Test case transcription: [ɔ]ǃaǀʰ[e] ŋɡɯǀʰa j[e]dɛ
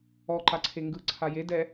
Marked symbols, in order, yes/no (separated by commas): yes, yes, yes